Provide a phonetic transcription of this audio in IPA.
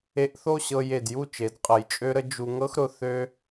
e˧ ʔ θ o˥˧ ɕ ɤ˧ j e˧˩ d j u˥˧ t͡ʃ e˩˧ d qʼ ə˧˩ j t͡ʃʼ ø˥ ɾ ə˥ d͡ʒ u˧ ŋ ɤ˥ x ɾ ʊ˧ θ ø˥

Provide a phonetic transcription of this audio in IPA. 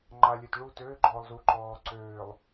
ŋ͡ǃ a˨ lʲ ø˨ t ɭ u˦˨ t øː˦ ɡ͡ǃ ɔː˨ lˠ z u˨ ǃ ɔː˨ ǀ øː˨ lˠ

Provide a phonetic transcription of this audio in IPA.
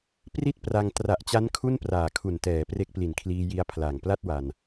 p r i˥˩ t̚ p r a˧ ŋ t r a˨˩ ʔ t͡ɕ a˦˥ n kʰ u˥˩ n p r aː˨˩ kʰ u˨˩ n t ɛː˩˦ p r e˦˥ k̚ p l i˨˩ n kʰ l iː˧ j i˦˥ a̯ pʰ l a˨˩ ŋ p l a˥˩ t̚ w a˧ n

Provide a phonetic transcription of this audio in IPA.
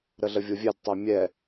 ɾ ə ɮ ə vʲ o vʲ ɛ d tˤ o mʲ ɛ

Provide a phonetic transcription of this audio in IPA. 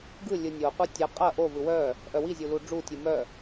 ɡ ɯ lʲ ɯ nʲ o qʷ ɯ tʲ ɐ qʼ ɐ ʔ o v ɯ w œ | ʔ œ w i zʲ u l u ɖ͡ʐ u tʲ ɯ m œ

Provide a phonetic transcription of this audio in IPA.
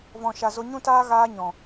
v ɔ̃˨ ʃ a˨ z o˧ ɲ ũ˦ t aː˦ ɣ aː˧ ɲ ɔ̃˨

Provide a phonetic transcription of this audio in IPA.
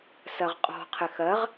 s ɜ ʁ qʼ ɔ̤ qʰ ɪ x ɜ ʁ

